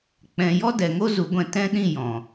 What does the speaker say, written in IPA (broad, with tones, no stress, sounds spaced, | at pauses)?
k͡p ɛ̃˨ j ɔ˦ d ɛ˨ ŋ o˦ z u˨˦ ɡʷ ɛ̃˧ t ɛ̃˦ ɗ ĩ˦˨ j ɔ̃˨